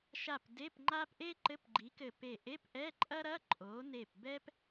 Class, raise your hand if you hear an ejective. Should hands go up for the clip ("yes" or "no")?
yes